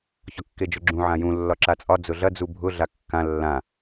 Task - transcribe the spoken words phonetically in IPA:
ç ɒ kː e d͡ʒ ʊ ɡ͡ǁ ũ ʕ ã j ũ lː ɒ ǁ a t͡sʼ ɒ d͡z ʊ ɮ ɐ d͡z u bʱ ʊ ɮ a kː ã lː ã

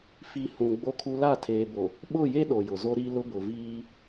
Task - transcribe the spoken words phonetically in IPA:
f i˨ h ũ˨ ɡ͡b o˦ kʰ u˦ l a˦˨ tʰ eː˨ b o˨ | ɓ ʊ˦˨ j e˦ ɗ o˨ j ʊ˨ z o˦ ɾ i˦ l ʊ˦ b ʊ˨ v iː˦

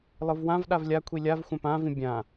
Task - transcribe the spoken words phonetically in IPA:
lˠ ɯ v w ã v ɗ a v lʲ a kʷʰ i lʲ a v xʷ æ̃ p ã v ĩ bʲ ã

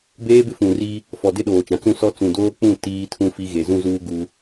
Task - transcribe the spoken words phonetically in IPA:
b eː˦ b ɪ˦ f ũ˨ r i˦ | f ɔ˨ d ɪ˦ ɗ oː˨ t͡ʃ ã˨ t͡s ũ˦ s ɔ˦ t͡s ũ˨ d oː˦ k͡p ũ˦˨ t iː˦ tʰ ũ˦ f i˦ ɣ e˨ z ũ˦ z uː˦ ɡ u˦

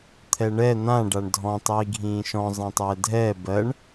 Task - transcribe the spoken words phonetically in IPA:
t̪ʰ ɛ ɳ ɛ n̪ ã ɖ a ɳ dʱ ɔ̃ tˤ iː ɡʱ ĩː ʃ ɔ̃ zˤ ɛ̃ tˤ ɛː dʱ ɛː b ɜ ɳ

